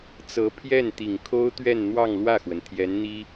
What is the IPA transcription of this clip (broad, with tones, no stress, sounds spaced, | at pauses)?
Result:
t͡s ɤ˧˥ pʰ j ɛ˥˩ n t̪ i˨˩ ŋ kʰ o˥ ʊ̯ t̪ ɥ ɛ˥˧ n n̪ w ɑ˥˧ ŋ l w ä˥˩ x w ə˩ n t̪ʰ j ɛ˧˥ n n̪ i˥